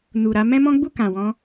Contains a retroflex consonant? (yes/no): no